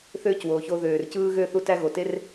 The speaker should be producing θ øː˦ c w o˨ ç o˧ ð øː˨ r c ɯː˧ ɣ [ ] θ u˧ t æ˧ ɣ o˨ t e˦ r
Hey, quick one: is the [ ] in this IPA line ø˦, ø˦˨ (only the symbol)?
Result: ø˦˨